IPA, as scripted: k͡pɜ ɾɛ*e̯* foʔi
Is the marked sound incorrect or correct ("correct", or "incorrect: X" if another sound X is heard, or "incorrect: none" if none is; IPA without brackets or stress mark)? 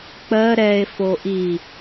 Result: correct